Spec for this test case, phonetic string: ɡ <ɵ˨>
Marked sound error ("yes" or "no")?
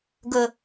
no